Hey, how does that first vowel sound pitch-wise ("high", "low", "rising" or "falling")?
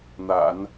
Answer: low